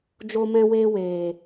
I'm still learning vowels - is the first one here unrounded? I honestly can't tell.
no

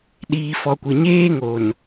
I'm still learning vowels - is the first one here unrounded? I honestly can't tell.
yes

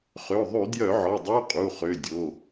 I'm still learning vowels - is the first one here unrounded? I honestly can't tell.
no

